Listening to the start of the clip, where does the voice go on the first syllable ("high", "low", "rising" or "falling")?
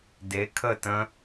rising